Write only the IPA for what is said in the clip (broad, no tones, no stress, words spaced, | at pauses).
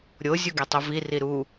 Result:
ɾʲo zʲuɡɛtˤuvi riɾu